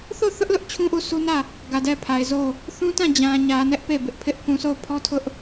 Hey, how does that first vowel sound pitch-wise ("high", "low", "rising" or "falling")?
falling